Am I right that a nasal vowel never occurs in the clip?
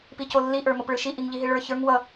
yes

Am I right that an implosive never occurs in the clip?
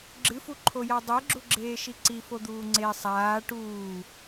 yes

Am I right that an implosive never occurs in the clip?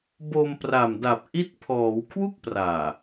yes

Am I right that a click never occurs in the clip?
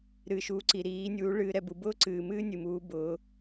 no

